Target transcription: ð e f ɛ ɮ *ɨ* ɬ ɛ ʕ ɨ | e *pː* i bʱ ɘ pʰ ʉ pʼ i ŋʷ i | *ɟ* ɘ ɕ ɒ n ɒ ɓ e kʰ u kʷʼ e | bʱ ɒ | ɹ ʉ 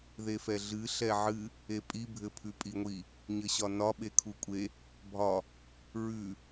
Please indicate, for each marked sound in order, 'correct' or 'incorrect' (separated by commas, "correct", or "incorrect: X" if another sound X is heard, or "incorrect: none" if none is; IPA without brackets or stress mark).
correct, incorrect: pʼ, incorrect: ɲ